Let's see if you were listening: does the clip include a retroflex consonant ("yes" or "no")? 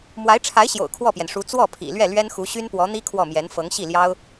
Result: yes